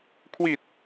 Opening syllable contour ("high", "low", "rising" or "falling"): low